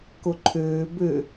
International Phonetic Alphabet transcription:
k o ǃʰ øː b ø

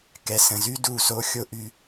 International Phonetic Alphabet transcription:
k ɛ˨ s ə̃˨ z y˦ d u˦˨ s o˦ xʲ o˦ ʔ y˧

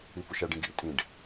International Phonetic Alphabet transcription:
i p u ʃ æ ɖ ĩ ɡ ḭ tʼ ĩ ɖ

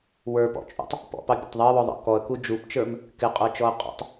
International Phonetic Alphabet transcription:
w ə˞ p ɔ̰ t͡ʃʼ ṵ tˤ | p ɔ̰ p ɑ bʲ ɑ̰ tˤ ðˤ ɪ ə̯ w ɔ ðˤ ɑ̰ k ɔ ə̯ k u d͡ʒ u p t͡ʃ ə˞ m | k ɪ qʼ ə˞ t͡ʃ ɔ ə̯ qʼ ɔ̰ tˤ

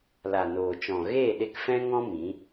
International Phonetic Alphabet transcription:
l a˨ n oː˨ t͡ʃ ɔ̃˨ ɣ eː˦˨ ɗ e˧ k f ɛ̃˦ ŋ ɔ̃˦ m ĩ˨˦

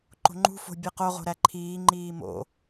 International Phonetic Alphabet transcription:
ǃ o̤ ŋ͡ǃ ṳ f o̤ bʲ e q o ʁ o̤ ɾ æ ǃʰ iː ŋ͡ǃ iː m o̰

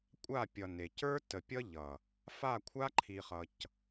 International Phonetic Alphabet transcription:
kʷʼ a˦˨ pʲ ʌ˨ n e˨ c ə˞˦ t ə˨ pʲ ʌ˦ ʎ ʌ˨ | f a˦˨ kʷʰ a˦ ǃʰ i˨ χ ʌ˨ c

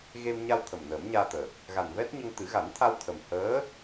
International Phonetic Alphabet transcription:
ɣ e˧ m ɲ a˧ w t̪ʰ ə˨˩ m n əː˨˩˦ m ɲ aː˧ t̪ əː˨˩ k̚ | ɣ a˨˩ n v ɛ˦˥ t̚ ɲ ə˧ ŋ t̪ ɨ˨˩˦ ɣ a˨˩˦ n t̪ʰ a˧ w t̪ʰ ə˨˩ m h əː˧˥

